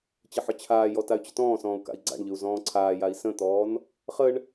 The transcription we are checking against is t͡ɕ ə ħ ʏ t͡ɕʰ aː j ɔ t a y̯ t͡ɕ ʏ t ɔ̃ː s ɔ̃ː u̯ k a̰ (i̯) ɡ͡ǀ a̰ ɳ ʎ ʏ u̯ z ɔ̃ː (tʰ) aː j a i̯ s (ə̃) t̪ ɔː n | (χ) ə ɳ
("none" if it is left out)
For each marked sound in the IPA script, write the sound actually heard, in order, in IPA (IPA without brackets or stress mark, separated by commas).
i̯, ǀʰ, ə̃, χ